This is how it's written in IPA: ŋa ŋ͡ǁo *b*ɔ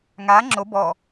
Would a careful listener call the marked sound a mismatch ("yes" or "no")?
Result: no